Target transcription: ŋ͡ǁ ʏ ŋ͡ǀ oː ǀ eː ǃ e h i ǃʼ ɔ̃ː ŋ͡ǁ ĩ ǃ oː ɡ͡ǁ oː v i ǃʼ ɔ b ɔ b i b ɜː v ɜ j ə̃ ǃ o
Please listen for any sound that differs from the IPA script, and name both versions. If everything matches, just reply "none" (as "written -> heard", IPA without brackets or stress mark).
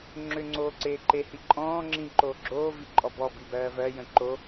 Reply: none